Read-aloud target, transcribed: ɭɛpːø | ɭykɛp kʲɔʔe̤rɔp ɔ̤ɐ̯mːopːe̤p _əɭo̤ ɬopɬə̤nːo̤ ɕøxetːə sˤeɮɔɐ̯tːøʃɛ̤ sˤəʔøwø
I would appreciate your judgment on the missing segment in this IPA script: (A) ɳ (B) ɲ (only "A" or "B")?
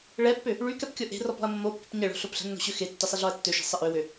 B